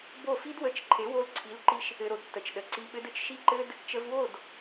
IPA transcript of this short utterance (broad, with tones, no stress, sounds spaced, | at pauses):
b o˦˨ f i˦ d w ə˧ t͡ʃ ǃʰ e˨˦ w o˧ l ǀʰ i˨˦ l ǃ i˧ ʃ | ɘ˧ ɾ o˧ d tː ə˨ t͡ʃ ɗ ə˨ ǀ i˧ ɓ ɘ˦ d ɘ˦ t͡ʃ ʃ i˧ ǃ ɘ˧ d | t͡ʃ ə˧ v w o˦˨ d